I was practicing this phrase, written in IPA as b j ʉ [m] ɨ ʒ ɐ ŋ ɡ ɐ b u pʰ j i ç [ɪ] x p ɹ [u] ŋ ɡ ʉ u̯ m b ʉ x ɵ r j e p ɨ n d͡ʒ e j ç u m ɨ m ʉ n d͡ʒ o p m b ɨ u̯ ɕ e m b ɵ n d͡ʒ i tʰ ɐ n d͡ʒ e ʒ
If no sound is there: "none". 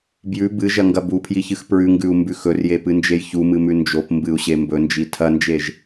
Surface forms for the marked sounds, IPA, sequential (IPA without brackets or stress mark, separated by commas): b, ɨ, ʉ